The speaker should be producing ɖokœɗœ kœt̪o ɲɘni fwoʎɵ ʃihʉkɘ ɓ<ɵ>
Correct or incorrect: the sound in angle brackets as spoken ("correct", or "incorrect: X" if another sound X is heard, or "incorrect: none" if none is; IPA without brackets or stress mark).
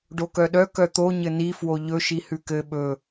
correct